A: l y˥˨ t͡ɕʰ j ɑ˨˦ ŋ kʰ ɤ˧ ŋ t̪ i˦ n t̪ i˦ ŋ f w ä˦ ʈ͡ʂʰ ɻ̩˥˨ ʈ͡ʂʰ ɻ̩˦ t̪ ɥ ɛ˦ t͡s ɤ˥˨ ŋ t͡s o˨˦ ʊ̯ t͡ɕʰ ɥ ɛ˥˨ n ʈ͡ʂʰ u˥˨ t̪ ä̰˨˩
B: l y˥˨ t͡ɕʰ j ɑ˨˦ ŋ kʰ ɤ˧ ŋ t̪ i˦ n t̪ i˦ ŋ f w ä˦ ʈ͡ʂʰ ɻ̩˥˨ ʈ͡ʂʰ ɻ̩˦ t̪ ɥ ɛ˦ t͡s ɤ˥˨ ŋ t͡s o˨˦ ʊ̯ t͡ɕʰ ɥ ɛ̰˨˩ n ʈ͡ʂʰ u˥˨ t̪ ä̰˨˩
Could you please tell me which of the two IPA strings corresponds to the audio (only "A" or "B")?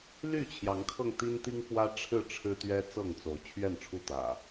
A